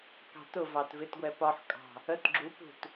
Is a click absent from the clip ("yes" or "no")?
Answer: no